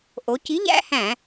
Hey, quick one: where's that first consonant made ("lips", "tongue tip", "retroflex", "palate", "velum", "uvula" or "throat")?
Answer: throat